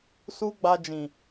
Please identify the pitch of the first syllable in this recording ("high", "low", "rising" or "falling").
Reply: high